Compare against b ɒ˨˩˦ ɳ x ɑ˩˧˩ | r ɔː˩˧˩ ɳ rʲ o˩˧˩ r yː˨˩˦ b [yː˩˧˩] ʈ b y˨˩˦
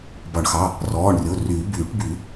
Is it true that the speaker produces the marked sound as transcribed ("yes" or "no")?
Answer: no